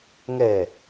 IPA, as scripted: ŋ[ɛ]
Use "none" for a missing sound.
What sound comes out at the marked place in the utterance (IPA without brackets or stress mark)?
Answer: ɛ